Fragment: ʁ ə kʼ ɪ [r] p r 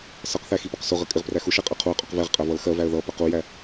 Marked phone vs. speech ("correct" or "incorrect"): incorrect